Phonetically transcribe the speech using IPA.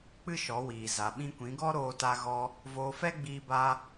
k͡pɨ˦ʃɔ˨˦wiː˨za˨ ɓĩ˧kʷĩ˨˦ɡɔ˦ ɾoː˧ta˧ɣɔ˧ | voː˧fɛ˦ɡ͡biː˧baː˧

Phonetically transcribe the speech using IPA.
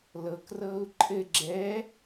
lɤkrɤːu̯ ǃʼɘ ɡ͡ǁɛ

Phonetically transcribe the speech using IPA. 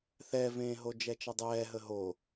θɛvẽːɦo d͡ʒɛt͡ʃʌdˤɛːɦə ɦo

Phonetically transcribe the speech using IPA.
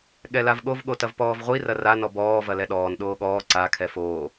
ɠɛlavɠov ɠotɐvpɔːvʁʷi rɐra nɔbɔː vɐlɛɗɔːn ɗoːɠɔː ǀa kʰɛfoː

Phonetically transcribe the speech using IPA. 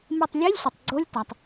me˧˩tˤlʲe˧˥˧lʲsʷɪ˩tˤ ɡ͡ǀo˧˥˧lʲta˩tˤ

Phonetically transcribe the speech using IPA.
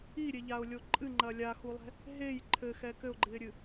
iɾʲeʎaʊ̯lʲo ǃʼɨŋ͡ǃɐ lʲaxulˠɛ̤ | ɦej ǃʰɘxɛ kɘʊ̯ɡ͡ǃɨɪ̯ɾʲɨ

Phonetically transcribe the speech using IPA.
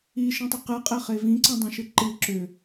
iʃĩtˤʏ qɨqʼeχe vĩǀə̃dˤĩʃɨ ǃɨ ǁʏ

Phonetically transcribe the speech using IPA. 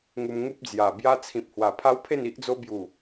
ŋu˧mŋu˦p̚d͡zja˨˩ bja˧t͡sʰĩ˨p̚ hwa˨˩pʰa˦wpʰe˥˧n i˦ʔd͡zo˦ bju˨˩

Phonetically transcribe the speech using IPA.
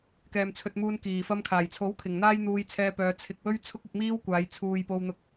kɛː˨mt͡sʰɵ˧t̚muː˧n kiː˨˩fɐ˧mkʰaː˨˩jt͡sʰo˨˥w kʰɪ˨˩ŋn̪aː˥j n̪uː˧jt͡sʰɛː˧pœː˨˧ t͡sʰɪ˨k̚ wɵ˥ɥt͡sʰʊ˥k̚ɪ˧k̚miː˥w kʷaː˨˧jt͡sʰuː˨jpo˧wn̪ʊ˧k̚

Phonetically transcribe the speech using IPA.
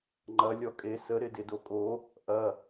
ŋ͡ǃɐ lʲɔkʼe sə ɾɪdɪdokʼo | ʔɐ

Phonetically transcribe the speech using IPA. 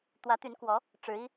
t̪wä˧˥t̪y˧˥nkwɔ˧˥ | ʈ͡ʂɻ̩˧˥i˥

